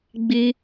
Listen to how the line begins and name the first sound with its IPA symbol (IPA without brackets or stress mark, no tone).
ɡ͡b